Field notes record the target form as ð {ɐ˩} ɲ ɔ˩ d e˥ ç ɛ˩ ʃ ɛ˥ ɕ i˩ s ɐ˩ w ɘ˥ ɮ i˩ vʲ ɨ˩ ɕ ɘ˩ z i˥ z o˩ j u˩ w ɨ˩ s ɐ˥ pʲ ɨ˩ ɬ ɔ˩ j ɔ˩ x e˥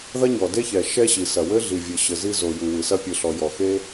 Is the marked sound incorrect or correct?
incorrect